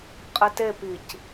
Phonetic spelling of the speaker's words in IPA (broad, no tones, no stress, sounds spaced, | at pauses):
qʼ ɪ t e p i c